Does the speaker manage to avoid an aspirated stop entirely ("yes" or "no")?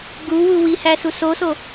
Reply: yes